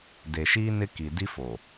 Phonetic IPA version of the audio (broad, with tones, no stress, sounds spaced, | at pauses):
d e˨ ʃ iː˦ n ɪ˦ k i˨ d i˦ f o˨